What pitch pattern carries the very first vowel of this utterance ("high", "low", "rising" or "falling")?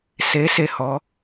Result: rising